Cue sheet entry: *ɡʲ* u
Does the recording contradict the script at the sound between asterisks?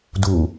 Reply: yes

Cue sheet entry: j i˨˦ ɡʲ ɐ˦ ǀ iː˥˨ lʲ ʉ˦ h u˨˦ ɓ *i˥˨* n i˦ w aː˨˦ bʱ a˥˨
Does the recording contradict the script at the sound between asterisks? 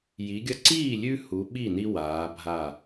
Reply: no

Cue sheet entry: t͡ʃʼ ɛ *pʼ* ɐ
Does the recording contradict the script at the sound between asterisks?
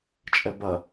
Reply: yes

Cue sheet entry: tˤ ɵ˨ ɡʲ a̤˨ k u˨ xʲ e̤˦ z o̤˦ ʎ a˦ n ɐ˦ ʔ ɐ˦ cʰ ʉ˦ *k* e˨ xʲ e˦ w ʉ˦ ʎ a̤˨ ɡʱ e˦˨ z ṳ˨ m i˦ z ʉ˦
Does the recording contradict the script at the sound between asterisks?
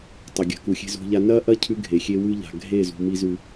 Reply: yes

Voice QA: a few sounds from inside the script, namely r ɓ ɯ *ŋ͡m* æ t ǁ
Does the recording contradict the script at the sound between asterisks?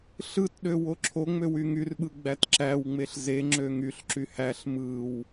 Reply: yes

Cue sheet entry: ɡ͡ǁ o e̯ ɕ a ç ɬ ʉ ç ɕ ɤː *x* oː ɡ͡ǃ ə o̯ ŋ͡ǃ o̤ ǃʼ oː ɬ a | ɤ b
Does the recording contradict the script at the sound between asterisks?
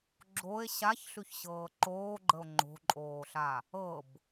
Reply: yes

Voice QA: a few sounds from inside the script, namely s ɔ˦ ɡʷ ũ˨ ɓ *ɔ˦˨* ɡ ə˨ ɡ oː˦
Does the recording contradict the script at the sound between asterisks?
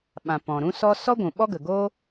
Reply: yes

